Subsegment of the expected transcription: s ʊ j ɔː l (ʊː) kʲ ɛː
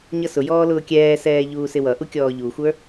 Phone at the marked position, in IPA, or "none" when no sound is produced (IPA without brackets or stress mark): ʊː